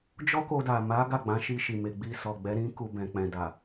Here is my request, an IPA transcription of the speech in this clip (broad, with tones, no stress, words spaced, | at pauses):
d͡ʒɔ˦ko˧da˨ ma˨˦ ɡa˦˨ɡ͡bã˨˦ ʃi˧ʃi˨me˨ ɡ͡bi˧sɔ˨ɡ͡bɛ˨˦ ɾĩ˦ku˧ bɛ̃˨k͡pɛ̃˨da˨